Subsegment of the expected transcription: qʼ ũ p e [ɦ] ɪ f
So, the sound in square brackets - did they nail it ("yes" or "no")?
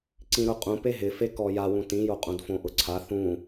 yes